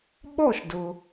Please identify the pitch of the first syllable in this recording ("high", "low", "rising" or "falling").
falling